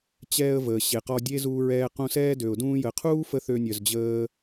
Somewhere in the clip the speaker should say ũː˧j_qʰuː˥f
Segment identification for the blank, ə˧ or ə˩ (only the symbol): ə˩